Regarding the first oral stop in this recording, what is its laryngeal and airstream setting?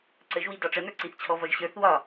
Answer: click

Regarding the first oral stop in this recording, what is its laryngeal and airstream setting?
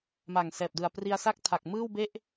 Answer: plain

